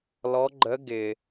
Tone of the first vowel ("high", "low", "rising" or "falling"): rising